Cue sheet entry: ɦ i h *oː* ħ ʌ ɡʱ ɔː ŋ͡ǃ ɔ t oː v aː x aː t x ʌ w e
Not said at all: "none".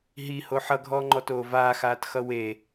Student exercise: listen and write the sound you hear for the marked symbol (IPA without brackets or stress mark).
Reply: o